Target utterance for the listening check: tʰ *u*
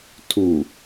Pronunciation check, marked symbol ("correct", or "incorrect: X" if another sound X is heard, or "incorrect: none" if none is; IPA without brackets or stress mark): correct